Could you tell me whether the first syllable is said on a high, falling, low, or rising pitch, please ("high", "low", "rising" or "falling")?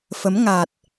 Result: rising